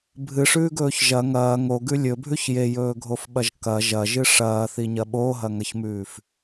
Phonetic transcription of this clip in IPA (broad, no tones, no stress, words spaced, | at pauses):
bʱɨʂʉːɡɵːç ʒɐ ŋɐː ŋoɡʉ lʲɵbʱʉç jejɵːɡʱofɓɐʒ kɐ ʒɐʒɨ ʂɐːθiɲɐ ɓoɦɐŋɐçmʉːf